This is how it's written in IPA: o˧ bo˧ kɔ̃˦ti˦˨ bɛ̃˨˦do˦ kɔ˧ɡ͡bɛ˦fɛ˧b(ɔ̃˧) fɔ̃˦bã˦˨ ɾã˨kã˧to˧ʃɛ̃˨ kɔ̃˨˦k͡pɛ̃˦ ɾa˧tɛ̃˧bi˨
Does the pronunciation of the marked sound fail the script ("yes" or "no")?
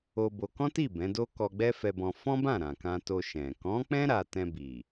no